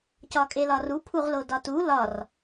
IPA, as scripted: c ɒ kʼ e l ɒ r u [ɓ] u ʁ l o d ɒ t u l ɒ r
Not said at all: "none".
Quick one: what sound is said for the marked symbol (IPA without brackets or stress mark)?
pʰ